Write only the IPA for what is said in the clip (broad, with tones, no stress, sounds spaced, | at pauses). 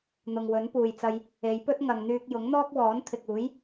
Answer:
n̪ ʊ˨ ŋ w ɵ˨˥ n p uː˨ j t͡s ɐ˧ j | e˨˧ j p ɵ˥ t̚ ŋ ɐ˧ ŋ n̪ yː˥ k̚ j ʊ˨˥ ŋ n̪ ɔː˥ k̚ w ɔː˨˥ n t̪ʰ ɪ˨ k̚ uː˨˥ j